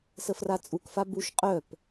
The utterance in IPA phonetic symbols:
s ə f r a t͡sʼ u k f a b u ʃ qʼ œ p

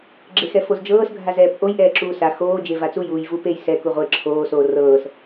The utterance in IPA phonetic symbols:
ɡ͡ǁ e x ɛ f o z d͡ʒ ɤː s ɡʱ a z ɛː p ʔ o j ʔ ɛː ǁ uː s a x oː d͡ʒ e v a t͡s u j uː j v u p e j s ɛ k u ʁʷ e ǁʰ oː s oː r ɤː s

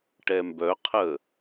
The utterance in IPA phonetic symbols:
ʈ ɛ m b œ qʰ ə

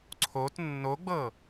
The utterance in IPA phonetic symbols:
ǀʰ o t nː o ɡ͡b ɤ

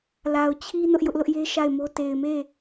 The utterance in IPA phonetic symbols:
l a˨ ʊ̯ t͡ɕʰ i˦ n ʊ˦ ʔ j ʊ˦ ʔ l ʊ˦ ʔ j e˦ ʃ a˦˨ ɪ̯ m o˦ t e˨ ɪ̯ m e˦˨

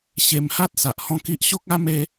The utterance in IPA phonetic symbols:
ɕ e˧ m h a˦ t̚ s a˨ ʔ h ɔ̃˥˧ k i˦ ʔ ɕ o˦ k̚ a˦ m e˦

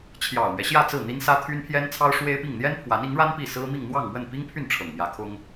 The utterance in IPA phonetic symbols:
t͡ɕʰ j ɑ˨˩ ʊ̯ m ɥ ɛ˦ ɕ j ä˥˧ t͡s ɹ̩˥˩ n̪ i˥ n s ä˥ t̪ʰ y˥ n pʰ j ɛ˥ n t͡sʰ ɑ˥ ʊ̯ ʂ w e˥ ɪ̯ p i˥˩ ŋ n̪ j ɛ˥ n pʰ w a˧˥ n i˧˥ ŋ ɻ a˥ n p i˥˩ s ɹ̩˥ m i˥˧ ŋ n̪ w ɑ˥˧ ŋ m w ə˥˩ n p i˥ ŋ pʰ y˥˩ n ʈ͡ʂʰ ɤ˨˩ ŋ m j ä˧˥ kʰ ʊ˥ ŋ

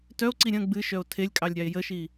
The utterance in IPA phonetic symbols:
t œ o̯ ǀ i ɾʲ ə̃ ɡ͡b ɨ ʃ œ o̯ tʰ e lʲ kʼ ɑ lʲ ɾʲ ɑ e̯ j ə ʃ i

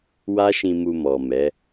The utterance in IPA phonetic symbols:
w a˦ ʃ ĩ˧ m u˧ m ɔ˨ m ɛ˨˦

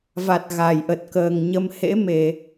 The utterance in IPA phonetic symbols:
v a˨˩ t̚ ɣ a˧˩ j ʔ ə˨˩ t̚ k əː˨˩ ŋ ɲ ə˧ m h ḛ˧˥ m e˧˩˨

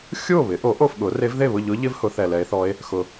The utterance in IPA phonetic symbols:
xʲ u˥˩ o̯ β ɪ˩˥ ʔ o˩˥ ʔ o˥˩ f ɠ ʊ˩˥ r e˧˥ v ð e˥˩ β ʊ˥˩ ʎ ʊ˧˥ ʎ ɪ˧˥ v h ʊ˩˥ θ ɛ˨ l ɛ˧˥ e̯ θ ɔ˧˥ e̯ | x ʊ˨

